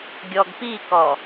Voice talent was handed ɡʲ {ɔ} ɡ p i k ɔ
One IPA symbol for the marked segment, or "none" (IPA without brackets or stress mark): ɔ